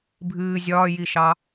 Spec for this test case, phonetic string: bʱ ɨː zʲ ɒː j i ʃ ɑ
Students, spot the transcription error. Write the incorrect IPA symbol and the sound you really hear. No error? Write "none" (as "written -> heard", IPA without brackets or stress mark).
none